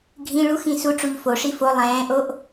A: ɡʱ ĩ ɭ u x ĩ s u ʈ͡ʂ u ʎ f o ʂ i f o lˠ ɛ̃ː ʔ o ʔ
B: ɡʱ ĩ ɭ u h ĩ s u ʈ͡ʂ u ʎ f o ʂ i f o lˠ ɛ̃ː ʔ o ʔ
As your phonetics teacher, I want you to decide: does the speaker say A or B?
A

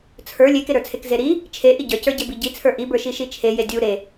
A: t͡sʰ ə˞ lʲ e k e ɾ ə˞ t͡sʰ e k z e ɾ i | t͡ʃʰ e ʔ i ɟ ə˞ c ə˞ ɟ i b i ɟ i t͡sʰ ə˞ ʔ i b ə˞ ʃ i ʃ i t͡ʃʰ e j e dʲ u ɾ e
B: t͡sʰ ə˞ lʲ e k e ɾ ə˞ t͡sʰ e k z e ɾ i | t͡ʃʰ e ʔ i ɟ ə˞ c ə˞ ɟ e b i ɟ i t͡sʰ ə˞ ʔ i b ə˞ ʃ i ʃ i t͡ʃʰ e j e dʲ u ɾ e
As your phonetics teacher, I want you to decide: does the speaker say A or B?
B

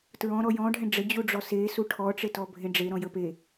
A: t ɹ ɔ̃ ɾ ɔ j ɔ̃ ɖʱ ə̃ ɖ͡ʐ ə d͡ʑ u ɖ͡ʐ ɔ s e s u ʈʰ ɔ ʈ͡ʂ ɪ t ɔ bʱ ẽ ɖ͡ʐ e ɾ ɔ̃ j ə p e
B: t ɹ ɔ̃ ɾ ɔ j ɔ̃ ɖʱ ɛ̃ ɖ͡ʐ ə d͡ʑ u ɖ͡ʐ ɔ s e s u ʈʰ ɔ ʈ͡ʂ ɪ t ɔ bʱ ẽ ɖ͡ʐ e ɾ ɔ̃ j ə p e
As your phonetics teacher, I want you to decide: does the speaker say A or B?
B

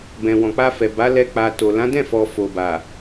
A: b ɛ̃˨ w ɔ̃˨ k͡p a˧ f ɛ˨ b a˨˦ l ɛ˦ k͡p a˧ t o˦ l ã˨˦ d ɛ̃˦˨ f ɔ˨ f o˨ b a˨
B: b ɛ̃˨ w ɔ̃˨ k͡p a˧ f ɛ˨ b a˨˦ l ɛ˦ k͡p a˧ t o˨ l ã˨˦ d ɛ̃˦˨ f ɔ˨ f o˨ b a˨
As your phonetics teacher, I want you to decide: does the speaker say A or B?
B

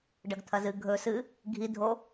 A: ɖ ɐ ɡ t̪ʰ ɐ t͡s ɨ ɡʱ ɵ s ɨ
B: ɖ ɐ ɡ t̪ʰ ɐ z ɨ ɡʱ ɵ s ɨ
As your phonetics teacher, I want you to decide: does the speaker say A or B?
B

